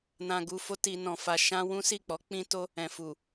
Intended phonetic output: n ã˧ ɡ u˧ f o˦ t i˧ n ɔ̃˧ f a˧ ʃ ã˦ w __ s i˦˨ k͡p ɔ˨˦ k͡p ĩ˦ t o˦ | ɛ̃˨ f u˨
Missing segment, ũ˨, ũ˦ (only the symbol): ũ˦